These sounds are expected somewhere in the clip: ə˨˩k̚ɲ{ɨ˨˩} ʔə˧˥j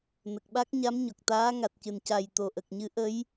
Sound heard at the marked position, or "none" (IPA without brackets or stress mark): ɨ˧˥